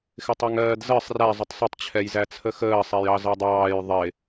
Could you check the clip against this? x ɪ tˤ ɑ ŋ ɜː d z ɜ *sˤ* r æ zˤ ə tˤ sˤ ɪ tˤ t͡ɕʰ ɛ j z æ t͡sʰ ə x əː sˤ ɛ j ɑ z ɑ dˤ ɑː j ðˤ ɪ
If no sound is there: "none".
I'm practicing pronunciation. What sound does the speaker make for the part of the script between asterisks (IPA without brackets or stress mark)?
sˤ